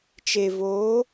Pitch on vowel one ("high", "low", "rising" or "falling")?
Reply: low